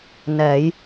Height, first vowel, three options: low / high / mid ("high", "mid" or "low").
mid